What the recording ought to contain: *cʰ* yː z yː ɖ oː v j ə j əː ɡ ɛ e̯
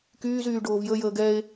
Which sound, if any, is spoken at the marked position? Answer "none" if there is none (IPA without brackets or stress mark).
k